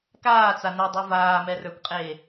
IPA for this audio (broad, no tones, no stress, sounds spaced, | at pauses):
k aː t͡s a n ɛ dˤ ə˞ v aː m ɛ r ə˞ kʷ qʼ eː